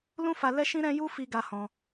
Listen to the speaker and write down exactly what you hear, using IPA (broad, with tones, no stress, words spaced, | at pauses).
lũ˦fa˧ lɛ˦ʃĩ˦ɾɛ̃˦ju˦ fi˧ɡa˧hɔ̃˧